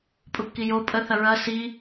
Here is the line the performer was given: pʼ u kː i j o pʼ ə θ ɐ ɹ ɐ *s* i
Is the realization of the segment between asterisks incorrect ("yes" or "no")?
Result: no